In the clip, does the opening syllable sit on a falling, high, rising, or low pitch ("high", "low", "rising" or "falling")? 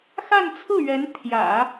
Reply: falling